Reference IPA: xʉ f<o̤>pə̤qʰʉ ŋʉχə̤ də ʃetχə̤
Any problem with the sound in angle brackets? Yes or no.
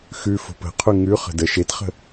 no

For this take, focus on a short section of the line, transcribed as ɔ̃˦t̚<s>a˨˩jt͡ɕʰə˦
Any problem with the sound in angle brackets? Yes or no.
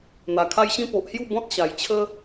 yes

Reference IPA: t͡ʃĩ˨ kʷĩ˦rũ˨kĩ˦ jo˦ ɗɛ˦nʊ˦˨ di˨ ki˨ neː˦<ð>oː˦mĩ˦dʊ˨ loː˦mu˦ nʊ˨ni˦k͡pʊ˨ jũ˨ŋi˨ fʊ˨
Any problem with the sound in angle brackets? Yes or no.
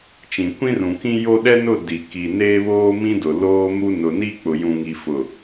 yes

